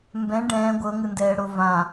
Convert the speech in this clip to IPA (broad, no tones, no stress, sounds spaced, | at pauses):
m b ɛ̃ ɖ ɛ̃ː ɡʷ ɤ ŋ ɯ n d ɛː ɽ o v ã